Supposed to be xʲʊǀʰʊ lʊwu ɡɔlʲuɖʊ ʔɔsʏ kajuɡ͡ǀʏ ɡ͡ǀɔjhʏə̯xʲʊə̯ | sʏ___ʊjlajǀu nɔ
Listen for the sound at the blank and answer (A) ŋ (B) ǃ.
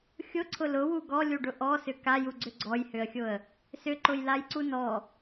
B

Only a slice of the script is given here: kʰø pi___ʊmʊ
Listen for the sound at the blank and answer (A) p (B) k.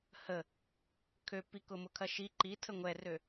B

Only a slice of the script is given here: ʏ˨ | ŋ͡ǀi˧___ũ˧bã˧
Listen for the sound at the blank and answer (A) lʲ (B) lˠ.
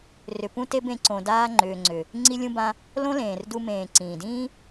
A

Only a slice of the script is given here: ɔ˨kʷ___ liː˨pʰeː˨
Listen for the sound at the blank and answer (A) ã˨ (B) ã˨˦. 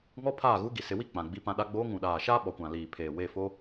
A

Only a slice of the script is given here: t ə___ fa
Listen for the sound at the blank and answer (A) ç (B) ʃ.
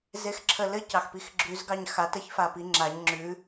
A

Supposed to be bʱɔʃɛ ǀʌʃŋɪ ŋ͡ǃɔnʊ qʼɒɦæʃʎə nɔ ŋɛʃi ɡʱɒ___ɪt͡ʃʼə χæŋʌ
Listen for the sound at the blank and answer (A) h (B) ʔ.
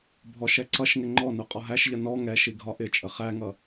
B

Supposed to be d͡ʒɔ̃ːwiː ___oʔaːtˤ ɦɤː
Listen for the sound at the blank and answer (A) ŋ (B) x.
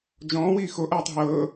B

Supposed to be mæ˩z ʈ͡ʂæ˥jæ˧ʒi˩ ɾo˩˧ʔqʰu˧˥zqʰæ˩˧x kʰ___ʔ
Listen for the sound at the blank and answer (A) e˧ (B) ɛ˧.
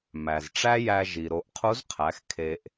A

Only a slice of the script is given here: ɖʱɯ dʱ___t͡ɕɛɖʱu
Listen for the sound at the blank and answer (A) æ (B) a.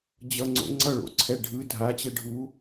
B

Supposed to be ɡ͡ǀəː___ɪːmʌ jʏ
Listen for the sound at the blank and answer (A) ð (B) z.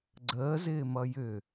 B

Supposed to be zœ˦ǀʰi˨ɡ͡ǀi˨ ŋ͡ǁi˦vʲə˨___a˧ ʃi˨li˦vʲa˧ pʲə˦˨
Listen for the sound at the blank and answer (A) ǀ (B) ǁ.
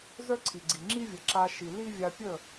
B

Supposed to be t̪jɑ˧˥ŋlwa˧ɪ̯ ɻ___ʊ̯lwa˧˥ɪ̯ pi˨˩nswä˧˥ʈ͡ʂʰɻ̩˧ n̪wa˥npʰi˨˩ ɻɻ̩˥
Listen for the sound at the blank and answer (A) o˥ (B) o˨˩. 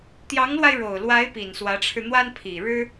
B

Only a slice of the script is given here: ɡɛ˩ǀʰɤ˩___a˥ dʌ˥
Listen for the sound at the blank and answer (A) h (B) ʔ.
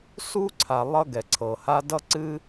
A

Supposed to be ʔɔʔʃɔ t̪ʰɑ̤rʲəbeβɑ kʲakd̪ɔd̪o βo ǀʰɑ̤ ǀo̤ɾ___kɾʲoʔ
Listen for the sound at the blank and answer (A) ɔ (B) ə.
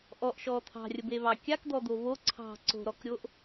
A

